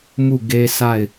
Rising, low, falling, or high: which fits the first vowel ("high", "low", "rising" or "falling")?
falling